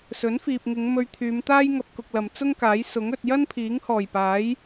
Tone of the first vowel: rising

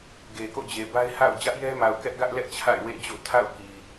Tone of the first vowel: low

